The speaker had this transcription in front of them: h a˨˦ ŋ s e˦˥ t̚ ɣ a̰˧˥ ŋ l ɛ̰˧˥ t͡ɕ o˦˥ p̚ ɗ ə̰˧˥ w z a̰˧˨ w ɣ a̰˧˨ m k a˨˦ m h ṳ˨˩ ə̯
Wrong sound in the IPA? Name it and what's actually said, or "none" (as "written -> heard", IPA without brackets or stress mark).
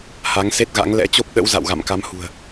none